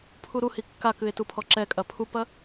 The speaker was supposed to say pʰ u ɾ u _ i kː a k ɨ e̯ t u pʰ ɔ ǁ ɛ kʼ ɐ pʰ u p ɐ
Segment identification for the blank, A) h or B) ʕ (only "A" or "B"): A